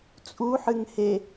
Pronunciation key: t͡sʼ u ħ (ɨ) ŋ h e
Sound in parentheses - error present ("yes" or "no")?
no